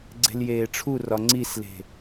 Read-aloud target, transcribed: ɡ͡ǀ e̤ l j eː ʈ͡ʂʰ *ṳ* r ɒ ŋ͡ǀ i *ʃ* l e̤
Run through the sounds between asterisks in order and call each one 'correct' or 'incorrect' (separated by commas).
incorrect, incorrect